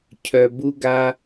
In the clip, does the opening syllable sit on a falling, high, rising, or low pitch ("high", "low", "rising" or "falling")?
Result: low